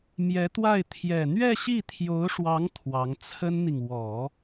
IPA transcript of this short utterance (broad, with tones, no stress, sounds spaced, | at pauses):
m j ɛ˧˥ t̪ w a˥˩ ɪ̯ t̪ʰ j ɛ˨˩ n̪ ɥ ɛ˥˧ ɕ i˥˩ t̪ʰ j o˧˥ ʊ̯ ʂ w ɑ˧˥ ŋ t̪ʰ w ɑ˧˥ ŋ t͡sʰ ə˥ n n̪ i˨ ŋ w ɔ˨˩˦